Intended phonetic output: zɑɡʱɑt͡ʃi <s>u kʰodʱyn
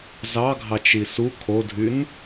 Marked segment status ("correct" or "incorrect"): correct